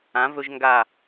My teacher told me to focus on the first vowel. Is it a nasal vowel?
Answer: yes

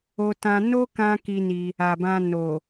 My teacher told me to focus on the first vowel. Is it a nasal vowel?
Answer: no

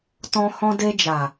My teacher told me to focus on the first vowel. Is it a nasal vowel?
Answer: yes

